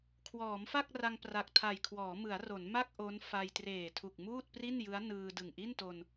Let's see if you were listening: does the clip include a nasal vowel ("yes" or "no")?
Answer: no